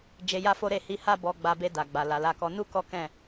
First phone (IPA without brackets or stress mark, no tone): d͡ʒ